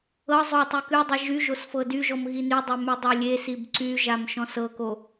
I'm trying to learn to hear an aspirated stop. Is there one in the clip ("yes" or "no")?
no